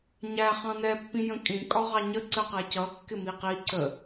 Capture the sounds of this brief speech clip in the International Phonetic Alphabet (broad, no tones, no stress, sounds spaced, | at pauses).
ɲ æ χ ɑ̃ n ɛ pː ĩ j ə̃ kʼ ĩ kʼ ɒ ʁ ɑ ɲ ə ǀ ə q ɛ c ʌ kː ɪ m i q i ǀ ə